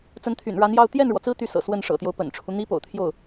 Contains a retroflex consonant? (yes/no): yes